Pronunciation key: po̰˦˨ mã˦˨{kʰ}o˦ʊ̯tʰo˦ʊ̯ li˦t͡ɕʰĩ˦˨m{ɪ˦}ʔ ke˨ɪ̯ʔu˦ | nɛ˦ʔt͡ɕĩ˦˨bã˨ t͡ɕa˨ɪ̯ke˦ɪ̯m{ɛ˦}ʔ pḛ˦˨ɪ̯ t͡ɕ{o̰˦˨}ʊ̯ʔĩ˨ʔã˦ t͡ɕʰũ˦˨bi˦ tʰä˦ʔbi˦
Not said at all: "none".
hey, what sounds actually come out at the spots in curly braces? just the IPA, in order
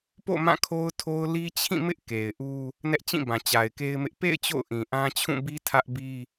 kʰ, ɪ˦, ɪ˦, o̰˦˨

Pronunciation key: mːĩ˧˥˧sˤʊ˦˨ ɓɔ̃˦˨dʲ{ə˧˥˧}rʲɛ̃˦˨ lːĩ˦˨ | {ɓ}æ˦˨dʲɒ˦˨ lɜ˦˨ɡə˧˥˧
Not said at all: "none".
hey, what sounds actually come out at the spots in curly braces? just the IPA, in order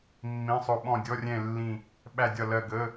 ɔ˧˥˧, ɓ

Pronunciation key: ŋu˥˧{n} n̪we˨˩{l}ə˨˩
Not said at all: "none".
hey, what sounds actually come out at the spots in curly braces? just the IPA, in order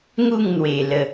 ŋ, l

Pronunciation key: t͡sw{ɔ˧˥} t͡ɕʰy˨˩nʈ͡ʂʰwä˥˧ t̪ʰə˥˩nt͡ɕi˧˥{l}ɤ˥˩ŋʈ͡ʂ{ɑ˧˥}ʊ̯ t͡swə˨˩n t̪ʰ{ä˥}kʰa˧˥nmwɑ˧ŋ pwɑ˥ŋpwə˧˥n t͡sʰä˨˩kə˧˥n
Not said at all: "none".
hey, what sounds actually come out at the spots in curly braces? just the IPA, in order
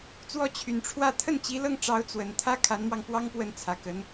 ɔ˧˥, l, ɑ˧˥, ä˥

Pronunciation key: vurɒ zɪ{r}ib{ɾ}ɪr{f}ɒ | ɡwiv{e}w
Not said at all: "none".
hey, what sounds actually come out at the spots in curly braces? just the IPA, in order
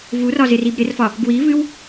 r, ɾ, f, ɨ

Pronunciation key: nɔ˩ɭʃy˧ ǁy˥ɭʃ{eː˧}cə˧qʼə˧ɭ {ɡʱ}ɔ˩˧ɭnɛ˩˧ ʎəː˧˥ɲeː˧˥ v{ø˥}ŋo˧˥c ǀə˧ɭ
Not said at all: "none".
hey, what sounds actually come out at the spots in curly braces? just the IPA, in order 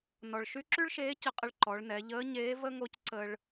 eː˧˥, ǃ, ə˥

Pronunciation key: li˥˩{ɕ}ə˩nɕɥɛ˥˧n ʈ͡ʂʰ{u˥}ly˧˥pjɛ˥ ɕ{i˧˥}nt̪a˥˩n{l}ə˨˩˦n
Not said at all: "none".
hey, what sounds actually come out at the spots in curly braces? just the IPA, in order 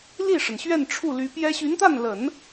ʂ, u˥˩, y˧˥, l

